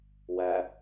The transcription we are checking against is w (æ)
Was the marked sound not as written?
no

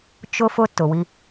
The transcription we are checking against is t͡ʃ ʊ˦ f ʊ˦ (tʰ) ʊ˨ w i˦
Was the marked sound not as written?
yes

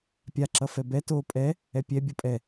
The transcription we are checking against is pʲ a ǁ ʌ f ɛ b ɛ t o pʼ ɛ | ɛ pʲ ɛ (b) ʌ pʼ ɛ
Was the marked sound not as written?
yes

